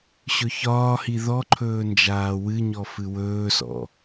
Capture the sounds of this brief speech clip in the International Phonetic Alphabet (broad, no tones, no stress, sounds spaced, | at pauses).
ɕ ɵ ç ɒː h i ð ɔ ǃʰ ɵː n d͡ʒ aː w ɨ ɲ ɔ f ɨ w ɵː s ɔ̰